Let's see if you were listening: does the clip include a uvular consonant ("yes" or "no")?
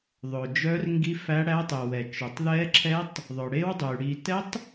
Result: no